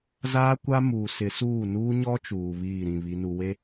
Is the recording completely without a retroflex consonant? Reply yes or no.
yes